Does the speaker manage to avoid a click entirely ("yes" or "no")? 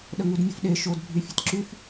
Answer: no